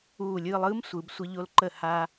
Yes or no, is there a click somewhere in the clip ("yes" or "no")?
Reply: yes